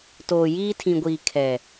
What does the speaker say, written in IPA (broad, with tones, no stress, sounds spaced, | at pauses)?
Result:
t oː˨ j iː˦ tʰ ĩ˨ ɡʷ iː˨ kʰ ɛ˨